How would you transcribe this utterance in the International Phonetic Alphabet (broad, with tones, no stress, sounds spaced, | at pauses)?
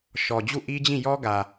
ʃ ɔ˨ d͡ʑ u˦˨ ʔ i˦ d͡ʑ ĩ˦˨ j ɔ˦ ɡ ä˨